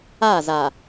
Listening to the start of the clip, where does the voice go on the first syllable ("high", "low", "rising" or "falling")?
falling